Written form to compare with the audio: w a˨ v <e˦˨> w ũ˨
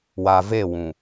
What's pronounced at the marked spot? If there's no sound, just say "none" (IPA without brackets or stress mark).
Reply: e˦˨